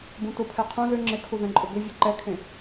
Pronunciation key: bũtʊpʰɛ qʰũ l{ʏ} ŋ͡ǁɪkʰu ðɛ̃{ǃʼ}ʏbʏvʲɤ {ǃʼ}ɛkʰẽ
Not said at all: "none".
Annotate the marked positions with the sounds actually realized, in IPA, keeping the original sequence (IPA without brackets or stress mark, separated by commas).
ʏ, ǃʼ, ǃ